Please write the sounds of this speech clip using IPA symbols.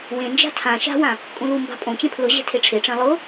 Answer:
w ẽ n d͡ʒ a̤ tʰ ã ʃ a̤ w ã | kʼ ũ l u m b a̤ pʼ õ t͡ɕ ẽ pʰ l ʊ ʑ ɛ̤ tʰ e ʈ͡ʂʰ e ʈ͡ʂ ẽ lˠ ʊ

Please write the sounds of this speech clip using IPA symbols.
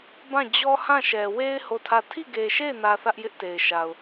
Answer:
b ã˦˨ d͡ʑ ɔ˦ h ã˦˨ ʃ ɛ˨ w e˦ ɪ̯ h o˦˨ tʰ ä˦˨ tʰ i˦˨ ɡ e˨ ʃ e˦˨ ɪ̯ n ä˦ θ ä˦ ʔ j ɪ˦ ʔ t e˨ ɪ̯ ʃ a˨ ʊ̯

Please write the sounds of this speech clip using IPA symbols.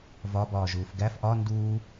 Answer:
v ɒ b ɒː ʒ uː f ɡ æ f ʔ ɒ n d uː

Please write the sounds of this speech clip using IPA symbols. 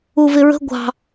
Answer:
u v ɪ ɹ ə̤ ɡʷ ɑ̤

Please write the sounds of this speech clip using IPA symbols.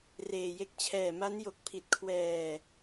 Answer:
r eː˧ j e˦˥ k̚ t͡ɕʰ ɛː˨˩ m a˦˥ n j o˨˩ k̚ pʰ i˨˩ t̚ kʰ w ɛː˧

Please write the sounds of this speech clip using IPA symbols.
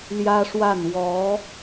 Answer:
l j ä˥ ʂ w a˥˩ n w ɔ˧˥

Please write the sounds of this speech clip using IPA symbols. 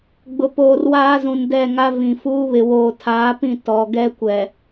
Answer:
ɡ͡b ʊ˨ p oː˨ r w aː˦ z ũ˨ n d ɛ˦˨ ŋ a˦ v ĩ˨ f uː˦ β ɪ˨ w oː˨ tʰ aː˨˦ p ĩ˦˨ t ɔ˨ ɡ ɛ˦ kʷ ɛ˨

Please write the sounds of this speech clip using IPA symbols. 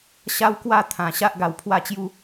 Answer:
ɕ a˦ w k w a˥˧ t̪ʰ ã˨˩ ɕ a˦ ʔ ɡ a˧ w pʰ w a˥˧ t͡ɕ j u˥˧

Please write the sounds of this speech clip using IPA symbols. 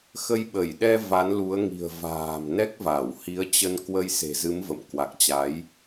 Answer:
x ə˧ j ɓ ə˧˩ j ɗ ɛ˧ v a˨˦ n l u˨˦ ə̯ ŋ i̤˨˩ ə̯ v a̤ː˨˩ m n ɛ˦˥ k̚ v a˧˩ w h i˨˦ ə̯ t͡ɕ ə˧ n k w ə˧ j s e̤˨˩ z ɨ˨˦ m v ə̰˧˨ m k w a˨˩ k̚ t͡ɕ a˨˦ j

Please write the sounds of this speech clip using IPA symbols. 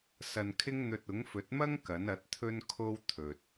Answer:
s ɐ˧ n kʰ ɪ˥ ŋ n̪ ɵ˧ t̚ ʊ˨˥ ŋ f ɵ˨˥ t̚ m ɐ˥ ŋ k ɐ˨˥ n ɐ˨˥ t̚ t̪ʰ ɵ˥ n kʰ o˥ w t̪ʰ ɵ˨ t̚

